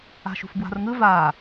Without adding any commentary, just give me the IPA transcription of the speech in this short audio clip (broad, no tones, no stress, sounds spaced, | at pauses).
a̤ ʃ ṳ f b w a̤ r ŋ ɯ v a